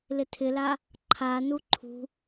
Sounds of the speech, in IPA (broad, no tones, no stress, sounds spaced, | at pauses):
l ɪ tʰ ɪ l a | ǃʰ a n u ǃʰ ṳ